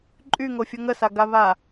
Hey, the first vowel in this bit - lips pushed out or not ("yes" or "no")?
yes